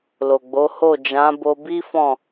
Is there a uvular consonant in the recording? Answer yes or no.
no